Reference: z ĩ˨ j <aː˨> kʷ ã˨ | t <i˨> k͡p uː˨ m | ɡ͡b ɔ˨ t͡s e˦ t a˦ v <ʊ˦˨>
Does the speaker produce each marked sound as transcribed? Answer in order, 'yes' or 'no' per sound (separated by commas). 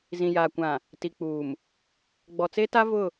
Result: yes, yes, yes